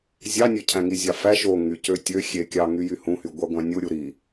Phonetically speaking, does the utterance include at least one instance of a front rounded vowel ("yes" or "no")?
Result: yes